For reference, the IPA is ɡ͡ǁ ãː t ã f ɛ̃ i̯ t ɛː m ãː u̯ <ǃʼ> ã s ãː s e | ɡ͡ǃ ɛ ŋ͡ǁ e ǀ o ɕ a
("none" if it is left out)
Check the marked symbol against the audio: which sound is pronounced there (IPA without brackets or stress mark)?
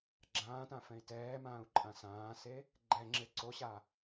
ǃʼ